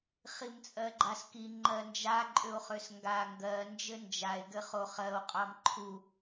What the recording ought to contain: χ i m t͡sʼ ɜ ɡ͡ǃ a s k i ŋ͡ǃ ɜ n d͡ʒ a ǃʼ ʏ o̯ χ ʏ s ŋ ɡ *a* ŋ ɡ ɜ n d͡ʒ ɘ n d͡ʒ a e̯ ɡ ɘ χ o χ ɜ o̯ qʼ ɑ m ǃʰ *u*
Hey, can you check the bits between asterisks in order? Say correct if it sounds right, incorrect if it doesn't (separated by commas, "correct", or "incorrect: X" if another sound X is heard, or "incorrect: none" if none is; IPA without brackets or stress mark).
correct, correct